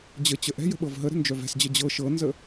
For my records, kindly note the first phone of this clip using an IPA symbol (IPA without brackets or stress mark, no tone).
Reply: d͡ʑ